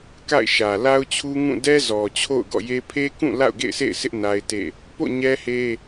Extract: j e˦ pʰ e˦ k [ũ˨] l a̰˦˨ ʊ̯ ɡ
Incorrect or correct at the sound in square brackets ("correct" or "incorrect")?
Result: incorrect